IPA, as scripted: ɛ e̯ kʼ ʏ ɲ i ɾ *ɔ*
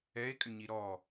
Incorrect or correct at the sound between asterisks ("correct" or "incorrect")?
correct